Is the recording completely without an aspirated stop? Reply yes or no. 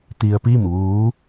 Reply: yes